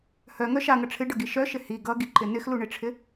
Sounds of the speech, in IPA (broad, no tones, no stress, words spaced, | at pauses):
hœŋœ ʃaŋʌ ʈ͡ʂʰɪɖʌɡi ʃœʃɪ hi ɡʌɡiǃɪ nɪxluɳɪʈ͡ʂʰɪ